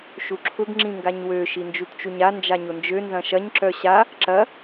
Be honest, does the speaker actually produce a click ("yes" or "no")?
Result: yes